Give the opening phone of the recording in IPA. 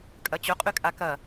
kʼ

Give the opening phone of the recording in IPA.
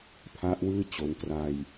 pʰ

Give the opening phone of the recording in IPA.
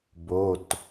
b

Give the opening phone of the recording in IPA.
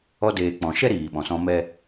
ɔ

